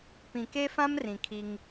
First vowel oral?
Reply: no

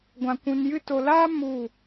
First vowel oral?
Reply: no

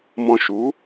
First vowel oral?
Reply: no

